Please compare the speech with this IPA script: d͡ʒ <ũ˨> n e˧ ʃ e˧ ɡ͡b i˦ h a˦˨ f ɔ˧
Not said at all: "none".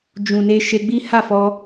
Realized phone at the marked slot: ũ˨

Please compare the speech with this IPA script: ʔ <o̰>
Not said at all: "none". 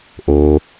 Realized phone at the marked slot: o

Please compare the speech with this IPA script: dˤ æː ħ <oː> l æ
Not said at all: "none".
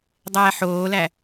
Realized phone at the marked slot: oː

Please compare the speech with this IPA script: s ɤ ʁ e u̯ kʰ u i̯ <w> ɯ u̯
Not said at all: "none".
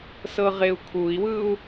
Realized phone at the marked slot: w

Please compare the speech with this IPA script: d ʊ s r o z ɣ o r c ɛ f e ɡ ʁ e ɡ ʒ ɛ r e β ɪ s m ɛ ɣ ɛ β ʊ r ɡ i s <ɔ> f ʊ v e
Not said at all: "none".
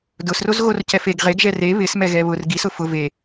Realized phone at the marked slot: ʊ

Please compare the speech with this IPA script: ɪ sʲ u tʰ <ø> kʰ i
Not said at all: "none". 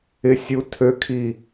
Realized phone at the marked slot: ø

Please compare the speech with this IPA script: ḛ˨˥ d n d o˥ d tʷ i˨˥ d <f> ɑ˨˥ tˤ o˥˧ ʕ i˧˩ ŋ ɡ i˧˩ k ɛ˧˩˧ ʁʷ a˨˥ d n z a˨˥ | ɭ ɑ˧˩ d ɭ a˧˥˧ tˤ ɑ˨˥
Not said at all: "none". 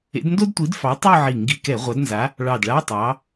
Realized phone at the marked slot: f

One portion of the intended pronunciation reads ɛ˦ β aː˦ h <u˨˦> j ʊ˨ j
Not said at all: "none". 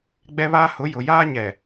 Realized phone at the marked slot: ʊ˨˦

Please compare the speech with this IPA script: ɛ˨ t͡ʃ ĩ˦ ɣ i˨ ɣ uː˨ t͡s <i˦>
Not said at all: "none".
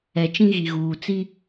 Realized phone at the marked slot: i˦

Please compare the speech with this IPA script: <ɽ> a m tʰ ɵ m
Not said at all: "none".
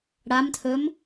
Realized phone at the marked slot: ɽ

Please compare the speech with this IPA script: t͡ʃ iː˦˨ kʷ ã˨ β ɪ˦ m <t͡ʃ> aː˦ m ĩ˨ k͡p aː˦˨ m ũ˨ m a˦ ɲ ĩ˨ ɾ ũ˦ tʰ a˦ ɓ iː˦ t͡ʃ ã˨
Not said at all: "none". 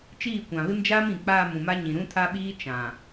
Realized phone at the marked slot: d͡ʒ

